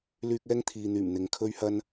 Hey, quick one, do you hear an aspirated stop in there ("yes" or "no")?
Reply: yes